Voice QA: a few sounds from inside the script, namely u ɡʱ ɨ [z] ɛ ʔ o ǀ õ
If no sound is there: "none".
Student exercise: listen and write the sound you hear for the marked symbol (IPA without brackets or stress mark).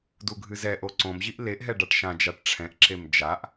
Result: z